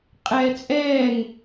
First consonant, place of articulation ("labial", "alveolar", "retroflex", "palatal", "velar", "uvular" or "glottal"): uvular